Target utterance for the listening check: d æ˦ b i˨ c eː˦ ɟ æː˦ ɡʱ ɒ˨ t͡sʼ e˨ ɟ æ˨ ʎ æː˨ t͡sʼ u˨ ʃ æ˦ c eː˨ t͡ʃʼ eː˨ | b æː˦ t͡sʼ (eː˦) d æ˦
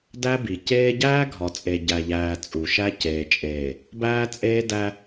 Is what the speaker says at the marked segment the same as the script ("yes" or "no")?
yes